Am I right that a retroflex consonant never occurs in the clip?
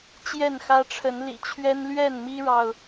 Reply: no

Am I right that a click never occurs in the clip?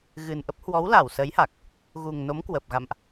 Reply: yes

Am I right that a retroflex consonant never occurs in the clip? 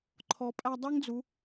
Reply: yes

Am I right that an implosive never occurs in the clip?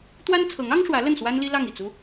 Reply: yes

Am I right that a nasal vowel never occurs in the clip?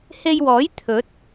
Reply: yes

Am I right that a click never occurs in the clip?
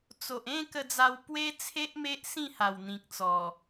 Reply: yes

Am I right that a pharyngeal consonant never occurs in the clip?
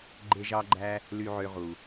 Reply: no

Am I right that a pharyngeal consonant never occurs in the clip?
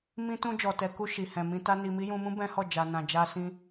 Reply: yes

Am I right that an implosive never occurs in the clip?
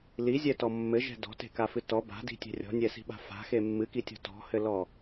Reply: no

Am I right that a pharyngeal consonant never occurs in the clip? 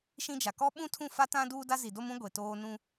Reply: yes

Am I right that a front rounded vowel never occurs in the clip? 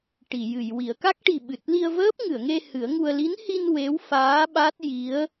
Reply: yes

